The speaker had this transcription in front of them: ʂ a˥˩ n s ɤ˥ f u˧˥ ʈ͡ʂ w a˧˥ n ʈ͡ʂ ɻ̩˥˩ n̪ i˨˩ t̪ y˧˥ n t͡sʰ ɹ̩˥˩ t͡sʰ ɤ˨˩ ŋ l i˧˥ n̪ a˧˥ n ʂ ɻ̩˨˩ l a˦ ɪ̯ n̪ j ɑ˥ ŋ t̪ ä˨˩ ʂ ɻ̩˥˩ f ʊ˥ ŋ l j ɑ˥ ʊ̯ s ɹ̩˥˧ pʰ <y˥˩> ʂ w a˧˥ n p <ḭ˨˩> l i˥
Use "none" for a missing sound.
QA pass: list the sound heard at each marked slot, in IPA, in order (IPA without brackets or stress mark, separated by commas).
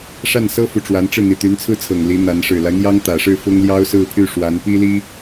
y˥˩, i˥